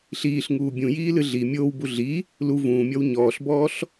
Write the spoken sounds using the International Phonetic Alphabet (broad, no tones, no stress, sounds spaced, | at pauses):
ɬ iː ɬ ŋ uː bʲ ũ j iː l ɨ ɮ i mʲ oː w b u ɮ i | l u v ũː mʲ ɔ w ɲ ɔː ɬ b ɔː ɬ